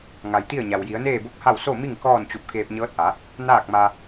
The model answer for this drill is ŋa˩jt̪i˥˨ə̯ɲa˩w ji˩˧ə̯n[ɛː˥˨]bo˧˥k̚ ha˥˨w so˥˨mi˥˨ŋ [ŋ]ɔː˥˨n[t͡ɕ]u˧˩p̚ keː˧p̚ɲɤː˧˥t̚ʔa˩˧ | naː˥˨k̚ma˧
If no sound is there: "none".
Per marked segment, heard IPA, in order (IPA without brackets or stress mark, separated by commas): eː˥˨, k, t͡ɕ